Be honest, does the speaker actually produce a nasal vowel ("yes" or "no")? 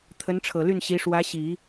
no